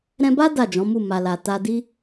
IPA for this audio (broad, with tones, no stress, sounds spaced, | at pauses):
ɾ ɛ̃˧ b a˦ d a˦˨ d͡ʒ ɔ̃˨˦ m u˦˨ m a˨ l a˨ t a˧ d i˦